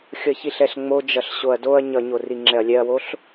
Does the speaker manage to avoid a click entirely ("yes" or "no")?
no